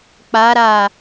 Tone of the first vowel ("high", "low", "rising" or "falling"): rising